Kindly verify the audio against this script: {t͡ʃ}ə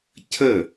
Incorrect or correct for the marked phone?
incorrect: cʰ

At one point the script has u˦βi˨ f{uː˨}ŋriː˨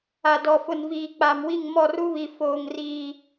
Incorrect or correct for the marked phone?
incorrect: oː˨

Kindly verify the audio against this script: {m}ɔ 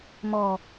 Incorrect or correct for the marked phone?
correct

